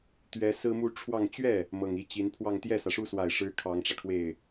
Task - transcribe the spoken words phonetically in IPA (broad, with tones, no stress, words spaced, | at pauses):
t̪ɥɛ˧˥ sɹ̩˥mu˥ ʈ͡ʂʰwɑ˥˧ŋ t͡ɕɥɛ˥˩ | mɤ˨˩ŋ i˧˥t͡ɕi˧˥npʰwɑ˥˧ŋ t̪jɛ˥˩sä˩ʂu˥swa˨˩ɪ̯ ʂɻ̩˥kʰɑ˧˥ŋʈ͡ʂä˧kʰwe˥˩ɪ̯